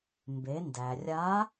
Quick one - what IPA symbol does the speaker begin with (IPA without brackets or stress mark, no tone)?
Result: m